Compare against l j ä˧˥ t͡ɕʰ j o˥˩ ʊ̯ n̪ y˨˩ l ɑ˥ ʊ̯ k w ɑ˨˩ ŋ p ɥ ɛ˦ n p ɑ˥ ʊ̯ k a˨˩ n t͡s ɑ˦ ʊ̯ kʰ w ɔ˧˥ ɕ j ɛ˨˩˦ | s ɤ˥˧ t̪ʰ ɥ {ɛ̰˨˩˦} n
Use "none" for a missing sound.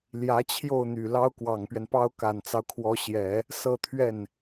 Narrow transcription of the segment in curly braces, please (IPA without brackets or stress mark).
ɛ˥˩